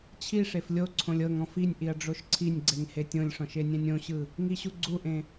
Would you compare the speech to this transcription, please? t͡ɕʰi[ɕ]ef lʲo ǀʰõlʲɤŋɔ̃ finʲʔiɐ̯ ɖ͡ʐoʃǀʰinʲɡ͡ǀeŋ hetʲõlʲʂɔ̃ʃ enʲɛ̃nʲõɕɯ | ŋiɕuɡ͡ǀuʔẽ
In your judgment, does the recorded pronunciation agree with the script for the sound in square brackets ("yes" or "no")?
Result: no